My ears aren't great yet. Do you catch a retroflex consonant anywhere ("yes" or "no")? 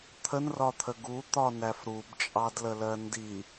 no